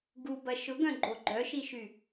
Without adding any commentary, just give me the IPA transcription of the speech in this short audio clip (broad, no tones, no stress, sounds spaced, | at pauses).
ɡ u b ɐ ʃ ʊ ɡ œ̃ ɡ͡ǃ o ɡ͡ǃ œ ʃ i ʃ y